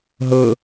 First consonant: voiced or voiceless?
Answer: voiced